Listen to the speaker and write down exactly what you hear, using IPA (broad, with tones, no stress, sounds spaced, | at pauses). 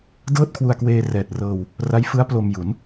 d ɤː˥˩ t̚ kʰ w u˧ a̯ k w eː˧ r ɛː˨˩ t̚ r ɤː˧ w | r a˦˥ j f ɯ˦˥ a̯ p l o˧ m j u˩˦ n